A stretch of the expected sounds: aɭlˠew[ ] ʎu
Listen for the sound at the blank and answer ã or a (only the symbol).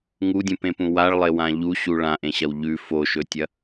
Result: ã